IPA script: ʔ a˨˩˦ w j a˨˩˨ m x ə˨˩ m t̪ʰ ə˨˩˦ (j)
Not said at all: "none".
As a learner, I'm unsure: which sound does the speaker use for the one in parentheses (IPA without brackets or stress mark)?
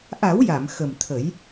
j